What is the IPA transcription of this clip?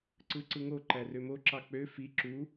ǀ ɯ ǀ ɯ ŋ o ǃ æ r ø m o ǁ ɑ k͡p ø f i ǁ u

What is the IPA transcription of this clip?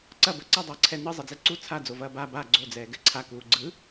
ǀ ɐ b ɐ ǀ ɐ dˤ ɐː ǀʰ ɛ n ɯ zˤ ɛ d͡z ɛ ǀ u t͡sʰ a d͡z o v ɐː b a b a ɡ͡ǀ o d͡z ɛː ɡ ɛ ǀʰ a k uː ɡ͡ǀ ɯ

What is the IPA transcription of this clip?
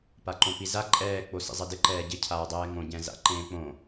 p a ǃ õ p i z a ǃʼ ɛː k͡p o s ḭ zˤ ɛ d ɪ ǃ ɛː ɟ ɪ cʰ aː dˤ ɛː ŋ õ ɟ ɛ̃ z a̰ ǃ ẽː k͡p õ

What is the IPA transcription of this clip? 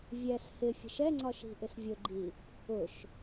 vʲ ɛ s h ɪ fʲ ə̤ ʃ ɛ ŋ͡ǀ ɒ ʃ i̤ ʔ ɪ s vʲ ʊ ɡ͡ǃ i | ʊ ʃ

